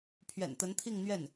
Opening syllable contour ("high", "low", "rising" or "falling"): low